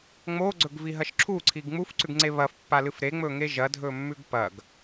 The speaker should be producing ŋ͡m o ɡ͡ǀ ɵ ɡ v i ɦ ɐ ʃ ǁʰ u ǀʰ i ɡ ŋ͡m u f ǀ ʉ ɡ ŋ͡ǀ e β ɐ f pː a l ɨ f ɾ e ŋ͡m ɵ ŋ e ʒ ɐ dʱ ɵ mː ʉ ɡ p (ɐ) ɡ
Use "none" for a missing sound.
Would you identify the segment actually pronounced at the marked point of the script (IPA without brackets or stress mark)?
ɐ